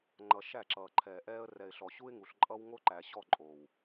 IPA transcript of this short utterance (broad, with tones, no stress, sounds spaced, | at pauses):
ŋ͡ǃ ʌ˨ ʃ æ˦˨ ǁ ʌː˨ ǃʰ ɛː˨ ʔ ɛː˦ ə̯ r ɛ˨ ɪ̯ ɬ ɔ˨ ɕ u˦ ɪ̯ ŋ u˨ ɬ ǃʼ ʌ˦ w ŋ o˦ ǃ æ˨ ɕ ɔ˦˨ ǃʼ o˨ w